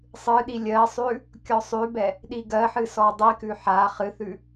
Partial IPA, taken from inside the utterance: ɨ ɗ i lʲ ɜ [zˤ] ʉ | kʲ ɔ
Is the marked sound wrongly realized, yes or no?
yes